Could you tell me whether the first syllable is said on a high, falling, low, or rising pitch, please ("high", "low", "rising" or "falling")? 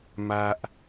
high